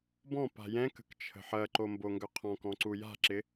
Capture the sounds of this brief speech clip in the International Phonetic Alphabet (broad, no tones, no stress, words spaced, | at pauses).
bɔ̃pa̤ jɛ̃kə̤kt͡ʃʰə̤ ħɐǃomboŋɡœ qʰɔ̃kɔ̃ǀu ja̤ǁɪ